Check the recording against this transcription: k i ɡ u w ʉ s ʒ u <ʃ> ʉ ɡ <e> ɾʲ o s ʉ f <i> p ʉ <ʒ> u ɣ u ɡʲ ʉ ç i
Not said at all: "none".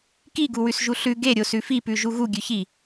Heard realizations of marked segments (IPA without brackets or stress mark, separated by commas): ɬ, e, i, ʒ